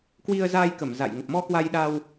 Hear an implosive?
yes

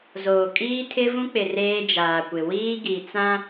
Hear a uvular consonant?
no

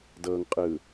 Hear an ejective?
yes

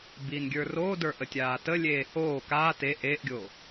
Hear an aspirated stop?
no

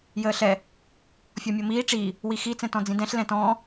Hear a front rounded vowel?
no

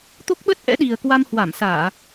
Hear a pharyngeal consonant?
no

